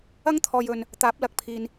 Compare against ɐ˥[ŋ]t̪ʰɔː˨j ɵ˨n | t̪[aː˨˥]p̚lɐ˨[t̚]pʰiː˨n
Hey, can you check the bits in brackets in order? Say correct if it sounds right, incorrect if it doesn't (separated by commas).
correct, correct, incorrect